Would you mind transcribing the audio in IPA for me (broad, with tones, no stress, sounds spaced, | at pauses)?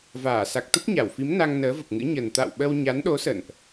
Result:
v aː˧˩ s a˨˩ k̚ t̪ ə˦˥ p̚ ɲ a˧˩ w f i˨˦ m n a˧ ŋ n əː˨˦ v ə˨˩ p̚ ŋ ɨ̰˧˥ ɲ ə˨˩ n t̪ a̰˧˨ w ɓ ə˧ w ɲ a˨˦ n ɗ o˨˦ s ə̰˧˨ n ʔ